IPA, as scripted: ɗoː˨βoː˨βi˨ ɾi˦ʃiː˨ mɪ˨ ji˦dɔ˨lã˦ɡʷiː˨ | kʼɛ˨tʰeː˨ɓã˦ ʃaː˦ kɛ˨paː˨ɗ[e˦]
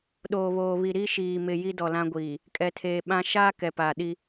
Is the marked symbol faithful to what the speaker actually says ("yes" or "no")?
no